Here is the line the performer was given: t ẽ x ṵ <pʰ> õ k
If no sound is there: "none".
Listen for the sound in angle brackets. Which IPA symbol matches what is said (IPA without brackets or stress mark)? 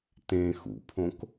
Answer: pʰ